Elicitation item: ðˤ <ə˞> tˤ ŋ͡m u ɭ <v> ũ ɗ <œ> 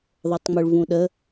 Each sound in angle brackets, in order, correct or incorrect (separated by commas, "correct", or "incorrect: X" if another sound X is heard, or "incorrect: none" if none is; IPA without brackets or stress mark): correct, correct, incorrect: ə